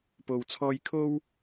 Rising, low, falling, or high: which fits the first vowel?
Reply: low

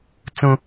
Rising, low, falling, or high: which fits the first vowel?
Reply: high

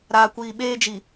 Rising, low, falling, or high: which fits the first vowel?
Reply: low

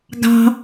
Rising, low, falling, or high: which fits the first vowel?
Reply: high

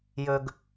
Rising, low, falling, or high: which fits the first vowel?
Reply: low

